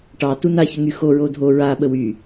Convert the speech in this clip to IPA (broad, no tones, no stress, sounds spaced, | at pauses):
ʈ ɑ t u n a ç ʏ ŋ y x o ɹ o dʱ o ɹ a ɓ ə w y